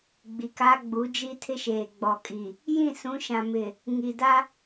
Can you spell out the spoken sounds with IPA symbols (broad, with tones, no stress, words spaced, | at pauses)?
ɡ͡bi˨ka˦ɡ͡bu˨˦d͡ʒi˦ tʰɪ˦ʃeː˨ɡ͡bɔ˨kʼi˨ | jĩ˦˨sũ˨˦ʃã˨mɪ˨ | ŋi˨da˦